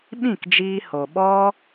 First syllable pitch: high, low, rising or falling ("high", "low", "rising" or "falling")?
falling